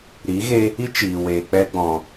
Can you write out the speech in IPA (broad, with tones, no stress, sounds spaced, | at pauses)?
ɾ i˨˦ ɣ e˦ | i˦ t͡ʃ iː˨ w eː˨ k͡p ɛ˧ ɡ͡b ɔ̃˨